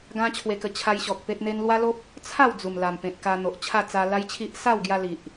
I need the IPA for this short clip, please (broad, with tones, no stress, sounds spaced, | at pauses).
ɡ ã˦ t͡ɕʰ w e˧ k ə˧ t͡ɕʰ a˧ j ɕ ɔ˨ k̚ p e˦ t̚ n̪ e˦ n l w a˦ l o˦ p̚ | t͡sʰ a˥˧ w d͡z u˨˩ m l a˨˩ m p ẽ˨ t̚ k a˧ n̪ o˨ ʔ t͡ɕʰ a˥˧ t͡s a˧ l a˦ j t͡ɕʰ i˦ ʔ s a˥˧ w ɡ j a˧ l i˨ ʔ